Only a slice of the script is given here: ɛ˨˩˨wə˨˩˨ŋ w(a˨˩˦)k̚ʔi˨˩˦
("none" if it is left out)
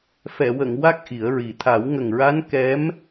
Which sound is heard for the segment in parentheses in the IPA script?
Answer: a˦˥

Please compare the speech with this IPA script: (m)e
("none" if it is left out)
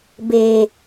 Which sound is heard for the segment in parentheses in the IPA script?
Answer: b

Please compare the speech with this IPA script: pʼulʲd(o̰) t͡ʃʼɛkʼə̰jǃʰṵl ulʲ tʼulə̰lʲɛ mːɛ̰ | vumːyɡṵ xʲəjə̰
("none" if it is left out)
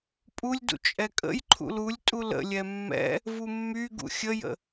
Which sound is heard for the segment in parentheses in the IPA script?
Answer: ṵ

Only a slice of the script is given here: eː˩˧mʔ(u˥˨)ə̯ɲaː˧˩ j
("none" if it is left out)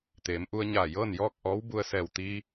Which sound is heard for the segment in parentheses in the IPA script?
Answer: u˧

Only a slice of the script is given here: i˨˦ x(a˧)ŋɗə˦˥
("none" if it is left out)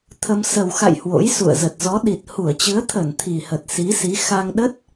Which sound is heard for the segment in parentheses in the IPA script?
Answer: a˧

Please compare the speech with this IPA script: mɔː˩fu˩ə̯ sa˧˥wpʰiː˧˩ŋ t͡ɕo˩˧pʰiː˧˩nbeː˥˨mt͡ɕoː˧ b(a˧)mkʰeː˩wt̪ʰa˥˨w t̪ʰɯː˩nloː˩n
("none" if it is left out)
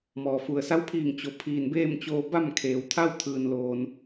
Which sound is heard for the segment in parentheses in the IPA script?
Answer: a˥˨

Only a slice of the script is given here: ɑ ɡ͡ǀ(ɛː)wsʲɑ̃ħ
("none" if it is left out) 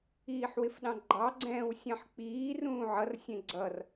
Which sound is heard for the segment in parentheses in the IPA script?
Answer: ɛ̃ː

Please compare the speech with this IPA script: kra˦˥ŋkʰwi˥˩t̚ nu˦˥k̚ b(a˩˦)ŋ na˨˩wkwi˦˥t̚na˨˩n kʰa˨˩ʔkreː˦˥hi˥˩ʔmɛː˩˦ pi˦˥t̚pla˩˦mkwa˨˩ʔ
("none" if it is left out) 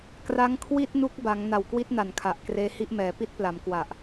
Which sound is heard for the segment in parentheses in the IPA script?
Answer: a˩˦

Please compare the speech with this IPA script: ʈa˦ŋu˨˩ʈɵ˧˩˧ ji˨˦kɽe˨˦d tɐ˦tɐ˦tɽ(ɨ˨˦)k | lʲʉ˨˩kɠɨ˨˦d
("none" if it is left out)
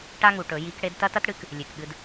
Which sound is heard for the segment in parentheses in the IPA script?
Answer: ɨ˨˦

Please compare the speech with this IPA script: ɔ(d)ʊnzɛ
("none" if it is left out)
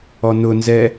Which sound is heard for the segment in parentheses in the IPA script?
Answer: n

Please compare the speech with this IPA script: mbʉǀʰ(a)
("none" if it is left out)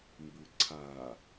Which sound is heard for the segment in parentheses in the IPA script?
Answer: a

